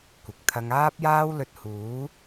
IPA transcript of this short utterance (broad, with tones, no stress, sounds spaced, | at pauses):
kʷ ɪ˨ k̚ t̪ʰ ɐ˥ ŋ aː˥ p̚ j aː˥ w l ɵ˧ t̚ h uː˨˥